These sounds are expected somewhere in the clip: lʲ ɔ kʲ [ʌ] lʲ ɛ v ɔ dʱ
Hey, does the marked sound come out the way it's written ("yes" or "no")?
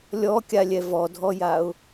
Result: no